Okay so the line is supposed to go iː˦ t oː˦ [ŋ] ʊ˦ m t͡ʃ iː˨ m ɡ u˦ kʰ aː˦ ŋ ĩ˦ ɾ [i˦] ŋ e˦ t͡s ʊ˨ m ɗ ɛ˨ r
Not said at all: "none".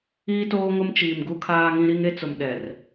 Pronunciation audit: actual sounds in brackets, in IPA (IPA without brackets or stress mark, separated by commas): ŋ, i˦